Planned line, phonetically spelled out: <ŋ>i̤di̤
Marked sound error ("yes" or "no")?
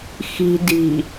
yes